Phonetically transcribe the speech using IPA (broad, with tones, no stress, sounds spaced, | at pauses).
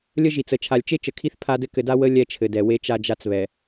lʲ ə˦ ʒ i˨ t͡s ə˨ t͡ʃʰ a˨ lʲ t͡ʃ e˦ t͡ʃ ə˨ kʰ i˦ θ pʰ a˦ d ɘ˦ k ɘ˨ d a˦ w ə˦ lʲ ɛ˦ t͡ʃʰ ɘ˨ d ɛ˨ w e˦ t͡ʃ a˦ d͡ʒ a˦ t͡s β ɛ˨